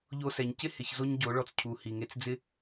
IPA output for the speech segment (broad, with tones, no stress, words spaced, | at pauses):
ʎo˧sɛ˨ɲcɪ˦ hɪ˨çzo˧ɲ ɟo˨˦ɭɔ˧t͡s cʰu˨ hi˨ŋe˧t͡sd͡zɪ˦